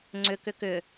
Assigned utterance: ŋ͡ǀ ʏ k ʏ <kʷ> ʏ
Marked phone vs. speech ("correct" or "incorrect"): incorrect